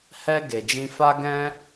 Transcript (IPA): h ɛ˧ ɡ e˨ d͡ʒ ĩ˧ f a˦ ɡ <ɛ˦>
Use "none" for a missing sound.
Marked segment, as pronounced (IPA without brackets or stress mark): ɛ̃˦